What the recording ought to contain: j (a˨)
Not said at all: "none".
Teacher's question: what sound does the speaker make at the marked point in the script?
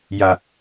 a˨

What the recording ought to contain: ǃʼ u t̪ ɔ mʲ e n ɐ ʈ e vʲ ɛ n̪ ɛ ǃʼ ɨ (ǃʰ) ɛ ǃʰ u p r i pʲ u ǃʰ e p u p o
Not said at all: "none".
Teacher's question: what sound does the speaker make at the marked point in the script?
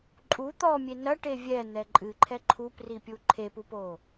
ǃʰ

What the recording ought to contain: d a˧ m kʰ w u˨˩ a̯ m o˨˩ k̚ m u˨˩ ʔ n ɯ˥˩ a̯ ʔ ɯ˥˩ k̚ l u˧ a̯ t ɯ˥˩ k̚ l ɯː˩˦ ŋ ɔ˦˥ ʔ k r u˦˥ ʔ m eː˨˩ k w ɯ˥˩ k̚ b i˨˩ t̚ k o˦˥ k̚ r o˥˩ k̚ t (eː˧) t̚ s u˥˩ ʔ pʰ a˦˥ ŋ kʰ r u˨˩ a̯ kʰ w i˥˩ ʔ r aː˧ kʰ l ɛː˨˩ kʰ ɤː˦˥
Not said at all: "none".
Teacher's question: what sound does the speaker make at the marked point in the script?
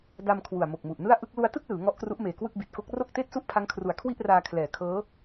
eː˥˩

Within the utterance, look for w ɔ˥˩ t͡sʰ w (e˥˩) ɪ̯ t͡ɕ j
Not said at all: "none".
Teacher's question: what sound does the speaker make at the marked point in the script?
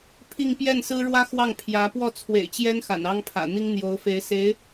ḛ˨˩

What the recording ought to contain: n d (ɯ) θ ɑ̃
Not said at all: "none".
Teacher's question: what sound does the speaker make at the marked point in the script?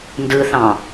ɯ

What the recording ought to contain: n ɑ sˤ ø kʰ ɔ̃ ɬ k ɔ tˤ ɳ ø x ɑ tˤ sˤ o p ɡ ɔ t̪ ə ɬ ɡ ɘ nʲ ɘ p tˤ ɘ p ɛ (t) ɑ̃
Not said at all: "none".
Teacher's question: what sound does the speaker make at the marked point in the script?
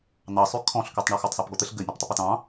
t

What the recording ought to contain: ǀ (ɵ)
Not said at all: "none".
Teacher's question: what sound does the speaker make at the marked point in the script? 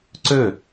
ɵ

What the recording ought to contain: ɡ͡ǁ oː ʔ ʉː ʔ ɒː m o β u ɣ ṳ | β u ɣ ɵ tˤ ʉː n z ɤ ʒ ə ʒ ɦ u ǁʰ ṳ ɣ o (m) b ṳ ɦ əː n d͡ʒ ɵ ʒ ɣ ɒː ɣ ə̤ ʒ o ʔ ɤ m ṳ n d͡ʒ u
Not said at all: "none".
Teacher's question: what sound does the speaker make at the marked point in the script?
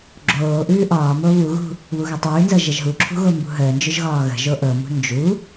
m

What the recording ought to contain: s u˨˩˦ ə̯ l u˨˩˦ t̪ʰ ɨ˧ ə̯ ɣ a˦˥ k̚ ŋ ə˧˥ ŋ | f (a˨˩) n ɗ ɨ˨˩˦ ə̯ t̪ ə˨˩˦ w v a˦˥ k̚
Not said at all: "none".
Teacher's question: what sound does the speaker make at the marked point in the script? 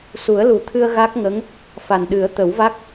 a˨˩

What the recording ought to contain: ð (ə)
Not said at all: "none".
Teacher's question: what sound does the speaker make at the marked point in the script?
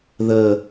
ə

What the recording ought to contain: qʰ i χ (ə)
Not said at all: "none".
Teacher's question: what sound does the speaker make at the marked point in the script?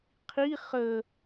ə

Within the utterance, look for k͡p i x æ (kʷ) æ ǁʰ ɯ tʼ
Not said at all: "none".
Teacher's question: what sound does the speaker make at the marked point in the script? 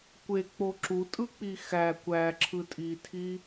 kʷ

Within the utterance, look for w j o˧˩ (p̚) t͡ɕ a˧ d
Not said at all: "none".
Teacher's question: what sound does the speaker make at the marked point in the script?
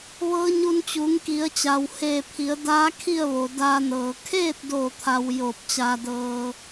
p̚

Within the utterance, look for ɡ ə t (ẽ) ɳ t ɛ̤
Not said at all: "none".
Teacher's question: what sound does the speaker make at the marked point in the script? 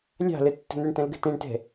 ẽ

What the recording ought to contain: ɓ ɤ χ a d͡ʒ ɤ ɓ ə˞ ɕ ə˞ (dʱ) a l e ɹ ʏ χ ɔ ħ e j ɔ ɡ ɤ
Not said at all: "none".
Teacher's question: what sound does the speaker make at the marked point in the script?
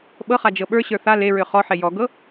θ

